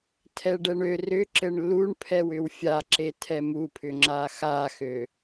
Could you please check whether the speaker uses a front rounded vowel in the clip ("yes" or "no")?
yes